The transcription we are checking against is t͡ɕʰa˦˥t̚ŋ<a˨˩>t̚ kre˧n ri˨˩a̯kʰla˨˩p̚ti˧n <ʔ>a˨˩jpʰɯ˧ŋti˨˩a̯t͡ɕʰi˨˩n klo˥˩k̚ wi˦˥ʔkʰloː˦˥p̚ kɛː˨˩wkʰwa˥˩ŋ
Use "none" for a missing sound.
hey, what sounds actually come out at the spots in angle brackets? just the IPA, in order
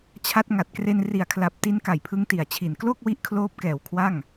a˨˩, k

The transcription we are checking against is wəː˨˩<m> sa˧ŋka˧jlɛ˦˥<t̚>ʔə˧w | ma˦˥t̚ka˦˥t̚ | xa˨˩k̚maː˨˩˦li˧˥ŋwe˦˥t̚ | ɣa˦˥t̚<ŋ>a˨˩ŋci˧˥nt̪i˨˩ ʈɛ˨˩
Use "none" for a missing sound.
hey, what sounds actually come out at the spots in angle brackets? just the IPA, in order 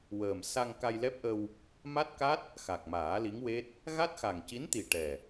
m, p̚, x

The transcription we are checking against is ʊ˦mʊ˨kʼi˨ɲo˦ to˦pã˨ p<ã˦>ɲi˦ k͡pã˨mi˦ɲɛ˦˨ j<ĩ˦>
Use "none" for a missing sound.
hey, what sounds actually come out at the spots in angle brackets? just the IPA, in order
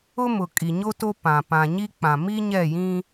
ã˨, ĩ˦

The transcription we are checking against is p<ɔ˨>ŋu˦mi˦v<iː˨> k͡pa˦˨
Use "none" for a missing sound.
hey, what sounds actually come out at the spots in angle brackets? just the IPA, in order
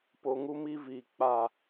o˨, iː˨

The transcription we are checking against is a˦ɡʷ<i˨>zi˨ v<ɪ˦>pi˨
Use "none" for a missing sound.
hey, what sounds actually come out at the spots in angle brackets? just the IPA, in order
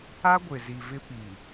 ɪ˨, ɪ˦

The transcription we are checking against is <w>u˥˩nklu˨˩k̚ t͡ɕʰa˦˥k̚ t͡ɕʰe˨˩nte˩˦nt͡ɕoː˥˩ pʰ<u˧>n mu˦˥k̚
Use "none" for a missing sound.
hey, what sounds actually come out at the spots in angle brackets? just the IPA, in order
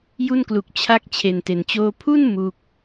j, u˥˩

